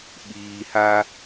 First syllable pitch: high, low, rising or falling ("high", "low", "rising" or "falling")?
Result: low